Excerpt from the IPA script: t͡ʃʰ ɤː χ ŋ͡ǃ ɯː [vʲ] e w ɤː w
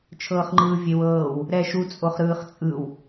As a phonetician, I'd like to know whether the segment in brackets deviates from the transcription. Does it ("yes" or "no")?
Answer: no